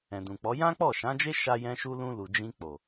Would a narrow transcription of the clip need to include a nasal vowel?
yes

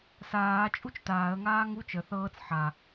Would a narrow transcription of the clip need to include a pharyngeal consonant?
yes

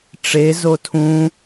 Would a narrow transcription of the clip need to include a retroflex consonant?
yes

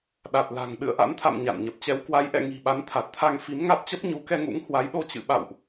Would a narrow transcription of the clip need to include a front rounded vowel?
no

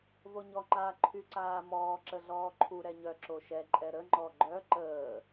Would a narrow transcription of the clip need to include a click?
yes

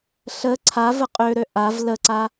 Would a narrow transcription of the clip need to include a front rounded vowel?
yes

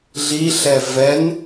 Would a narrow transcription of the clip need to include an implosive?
no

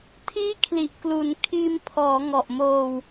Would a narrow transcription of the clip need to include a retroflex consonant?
no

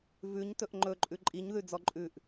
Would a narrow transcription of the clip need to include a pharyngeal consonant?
no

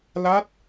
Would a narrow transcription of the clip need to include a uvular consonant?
no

